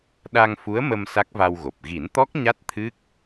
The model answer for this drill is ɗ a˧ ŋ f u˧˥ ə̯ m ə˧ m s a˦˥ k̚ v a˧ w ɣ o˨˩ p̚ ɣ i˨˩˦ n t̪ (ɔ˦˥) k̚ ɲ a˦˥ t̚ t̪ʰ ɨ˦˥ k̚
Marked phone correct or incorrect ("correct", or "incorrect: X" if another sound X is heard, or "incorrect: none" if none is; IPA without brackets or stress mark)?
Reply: correct